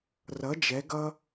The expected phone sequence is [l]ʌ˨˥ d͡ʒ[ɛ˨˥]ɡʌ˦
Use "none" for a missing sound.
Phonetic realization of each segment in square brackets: r, ɛ˨˥

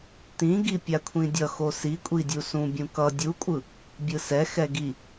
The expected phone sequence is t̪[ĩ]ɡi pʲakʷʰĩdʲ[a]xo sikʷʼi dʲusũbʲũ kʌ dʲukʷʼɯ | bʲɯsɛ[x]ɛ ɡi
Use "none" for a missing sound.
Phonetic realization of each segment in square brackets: ĩ, ʌ, x

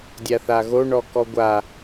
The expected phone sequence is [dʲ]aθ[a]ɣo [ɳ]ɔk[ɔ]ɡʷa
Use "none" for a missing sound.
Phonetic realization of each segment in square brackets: dʲ, a, ɳ, ɔ

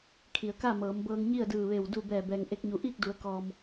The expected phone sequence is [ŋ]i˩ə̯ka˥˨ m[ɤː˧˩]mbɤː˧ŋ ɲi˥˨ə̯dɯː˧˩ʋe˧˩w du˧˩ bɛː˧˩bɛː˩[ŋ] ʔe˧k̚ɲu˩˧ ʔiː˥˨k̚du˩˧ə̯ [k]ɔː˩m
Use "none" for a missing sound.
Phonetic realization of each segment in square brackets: kʰ, ɤː˩˧, ŋ, k

